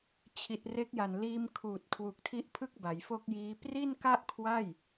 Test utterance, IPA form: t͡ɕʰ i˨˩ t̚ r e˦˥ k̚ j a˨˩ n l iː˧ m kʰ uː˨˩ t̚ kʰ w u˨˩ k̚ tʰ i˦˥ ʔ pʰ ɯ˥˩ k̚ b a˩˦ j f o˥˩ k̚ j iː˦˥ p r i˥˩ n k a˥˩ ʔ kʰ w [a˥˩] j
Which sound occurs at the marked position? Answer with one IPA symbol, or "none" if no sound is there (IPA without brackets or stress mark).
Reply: a˥˩